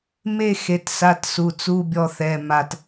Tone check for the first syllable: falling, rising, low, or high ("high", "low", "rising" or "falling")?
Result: falling